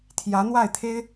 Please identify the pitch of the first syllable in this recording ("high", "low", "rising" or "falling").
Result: rising